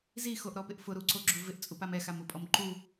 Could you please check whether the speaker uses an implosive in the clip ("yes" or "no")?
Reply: no